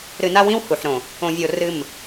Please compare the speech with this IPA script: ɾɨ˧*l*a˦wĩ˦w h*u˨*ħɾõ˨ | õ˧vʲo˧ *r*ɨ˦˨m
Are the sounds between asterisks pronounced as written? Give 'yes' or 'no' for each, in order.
no, yes, yes

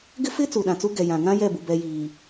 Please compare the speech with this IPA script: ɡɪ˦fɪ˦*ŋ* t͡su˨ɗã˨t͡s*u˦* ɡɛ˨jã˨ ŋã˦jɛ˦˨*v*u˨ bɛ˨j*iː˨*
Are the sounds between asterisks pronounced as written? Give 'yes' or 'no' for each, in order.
no, yes, no, yes

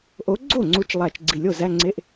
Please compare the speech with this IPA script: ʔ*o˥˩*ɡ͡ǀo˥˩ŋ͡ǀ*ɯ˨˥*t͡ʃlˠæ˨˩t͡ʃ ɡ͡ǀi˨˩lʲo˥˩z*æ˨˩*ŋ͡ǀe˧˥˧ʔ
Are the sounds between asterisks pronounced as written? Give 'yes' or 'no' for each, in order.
no, no, no

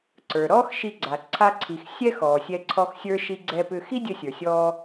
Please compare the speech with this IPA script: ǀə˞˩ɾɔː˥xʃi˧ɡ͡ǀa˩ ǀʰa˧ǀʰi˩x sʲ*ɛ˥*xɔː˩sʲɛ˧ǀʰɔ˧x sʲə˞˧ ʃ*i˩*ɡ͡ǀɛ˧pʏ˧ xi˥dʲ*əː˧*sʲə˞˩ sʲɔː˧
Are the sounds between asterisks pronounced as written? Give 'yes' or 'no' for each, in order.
yes, no, yes

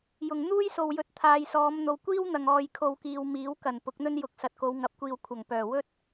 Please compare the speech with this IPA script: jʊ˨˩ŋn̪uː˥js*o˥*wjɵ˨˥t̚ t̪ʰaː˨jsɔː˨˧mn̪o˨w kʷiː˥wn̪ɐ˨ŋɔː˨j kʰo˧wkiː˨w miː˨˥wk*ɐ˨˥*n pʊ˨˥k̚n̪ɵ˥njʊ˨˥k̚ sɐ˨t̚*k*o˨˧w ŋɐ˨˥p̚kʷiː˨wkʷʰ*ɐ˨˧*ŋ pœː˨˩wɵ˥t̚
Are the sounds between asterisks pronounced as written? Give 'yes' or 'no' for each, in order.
no, no, yes, no

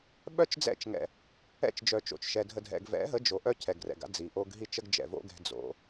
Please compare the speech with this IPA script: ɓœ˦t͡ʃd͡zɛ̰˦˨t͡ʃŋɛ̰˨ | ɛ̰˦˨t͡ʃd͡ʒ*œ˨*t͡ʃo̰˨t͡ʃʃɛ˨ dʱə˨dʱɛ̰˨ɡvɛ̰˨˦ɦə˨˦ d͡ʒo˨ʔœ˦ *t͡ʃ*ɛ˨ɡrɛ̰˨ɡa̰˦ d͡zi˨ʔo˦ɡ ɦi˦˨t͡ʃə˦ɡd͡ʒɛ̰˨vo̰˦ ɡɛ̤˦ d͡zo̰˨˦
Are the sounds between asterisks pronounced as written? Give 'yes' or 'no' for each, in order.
yes, no

